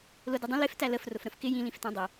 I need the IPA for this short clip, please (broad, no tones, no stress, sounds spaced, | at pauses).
l ʊ d ɪ dˤ ə̃ l ɪ f t æ l ə f r ʊ f ɾ ə̃ f k ɪ j ĩ l ĩ f t æ̃ dˤ ə